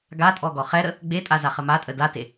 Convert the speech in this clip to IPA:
ɡ a tʼ ɔ ɡ ɔ χ ɛ ɾ ə | ɡ͡b e tʼ a z a χ ə m a tʼ ə d a t e

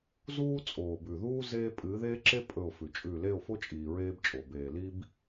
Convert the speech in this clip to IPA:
z uː˦ t͡sʼ oː˨ b ʉ˨ ð uː˦ z eː˦ pʼ ɨː˨˦ ð eː˦ ǁ e˦ pʼ ɵ˦˨ o̯ f ʉ˨ t͡ʃʼ ʉ˦˨ l e˦˨ o̯ f o˦ t͡ʃʼ iː˨ ɹ eː˦ b t͡ʃʼ o˨ b eː˨ l i˦ b

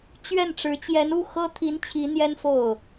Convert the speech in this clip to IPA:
t͡ɕ ɥ ɛ˥˩ n ʈ͡ʂ ɻ̩˧˥ t͡ɕ j ɛ˧˥ n u˥˩ x ɤ˥ t̪ʰ i˧˥ n t͡ɕʰ i˧˥ n̪ j ɛ˥ n f o˥˩ ʊ̯

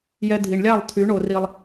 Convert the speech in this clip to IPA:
j ɛ˦ dʱ i˧ ɳ lʲ a˦˨ lˠ tʰ y˨˦ ɳ o˧ r i˧ lˠ

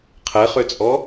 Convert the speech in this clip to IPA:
qʰ ɛ χ ø t͡sʼ ɔ

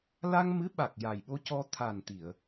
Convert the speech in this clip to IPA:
l a˧ ŋ m ɨ˧˥ ɓ a˨˩ k̚ j a˨˩ j ɓ o˧ c ɔ˧ t̪ʰ a˨˩ n t̪ i˨˩˨ ə̯

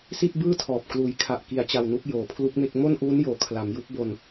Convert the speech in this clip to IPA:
s i˥˩ t̚ b ɯː˥˩ tʰ ɔː˨˩ p̚ k l uː˩˦ j kʰ a˨˩ ʔ k i˩˦ a̯ t͡ɕ a˨˩ w n u˦˥ k̚ j oː˨˩ pʰ l u˦˥ k̚ m e˥˩ k̚ m o˥˩ n ʔ uː˦˥ n j oː˩˦ kʰ l a˩˦ m j u˦˥ k̚ b o˧ n

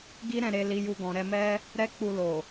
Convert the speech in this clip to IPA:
ɡ i˦ ɾ ɛ̃˦˨ ɾ e˧ l i˧ j u˧ ɡ ɔ̃˨ ɾ ɛ˧ m ɛ˦ | ɾ ɛ˦ k͡p u˧ l o˨

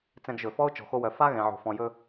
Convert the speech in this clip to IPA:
t͡s ɛ̃˧ ɡ ʒ ɵ˨ f ɔ˦ ʊ̯ t͡ʃ ɔ̤˨ x o˧ w œ˨ f a˦ ɣ ɛ̃˨ ʕ o̤˨ f ɔ̃˨ j ɵ˧

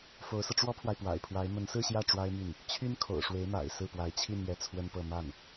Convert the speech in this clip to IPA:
f o˧˥ ʊ̯ s ɤ˧ ʈ͡ʂ w ɔ˥ pʰ w a˨ ɪ̯ p w a̰˨˩ ɪ̯ pʰ w a˧˥ ɪ̯ m ə˧˥ n s ɹ̩˥˧ ɕ j ä˥˩ ʈ͡ʂ w a˥ ɪ̯ m y˥˩ n | t͡ɕʰ y˥ n kʰ o̰˨˩ ʊ̯ ʂ w e˧˥ ɪ̯ m a̰˨˩ ɪ̯ s ɹ̩˥˩ p w a˧˥ ɪ̯ t͡ɕʰ i˥˧ n ɥ ɛ˥˩ t͡sʰ w ə˥ n p ɤ˥˧ m a˥˩ n

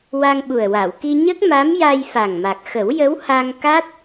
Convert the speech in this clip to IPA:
w a˧ ŋ ɓ u˨˩ ə̯ w a˨˩˨ w k i˧ ɲ ə˦˥ k̚ m a˧˥ m j a˧ j f a˨˩ ŋ m a˨˩ k̚ x ə˨˩˦ w j ə˧˥ w h a˧ ŋ k a˦˥ t̚

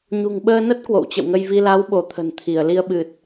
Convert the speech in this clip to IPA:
ɲ ṳ˨˩ ŋ ɓ əː˧ n ə˦˥ t̚ k w o̰˧˨ w t͡ɕ ə̰˧˨ w ŋ ə˧ j v i˧ l a˨˦ w ɓ o˧˩ t̪ʰ ə̤˨˩ n t̪ʰ i˧˩ ə̯ l i˧ ə̯ ɓ ɨ˨˩ t̚

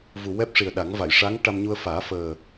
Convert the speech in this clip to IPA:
v u˨˩ w ɛ˦˥ p̚ ʂ i˨˩ ə̯ ɗ a˨˩˦ ŋ v a˨˩˨ j ʂ a˧˥ ŋ ʈ a˧ m ɲ u˧ ə̯ f aː˨˩˦ f əː˨˩

